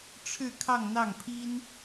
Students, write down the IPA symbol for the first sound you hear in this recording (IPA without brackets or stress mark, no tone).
ʈ͡ʂʰ